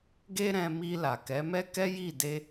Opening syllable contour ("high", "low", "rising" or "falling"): high